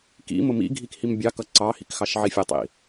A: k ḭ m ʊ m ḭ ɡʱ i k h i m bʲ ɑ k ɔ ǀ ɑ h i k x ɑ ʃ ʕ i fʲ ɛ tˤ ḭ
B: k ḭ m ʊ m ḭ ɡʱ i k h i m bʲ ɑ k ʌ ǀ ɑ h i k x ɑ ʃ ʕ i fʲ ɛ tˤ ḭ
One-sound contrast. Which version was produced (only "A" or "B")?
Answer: B